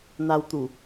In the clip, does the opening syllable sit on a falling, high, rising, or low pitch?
high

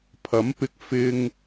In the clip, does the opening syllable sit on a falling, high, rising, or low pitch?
rising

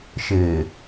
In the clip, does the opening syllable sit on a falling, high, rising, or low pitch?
low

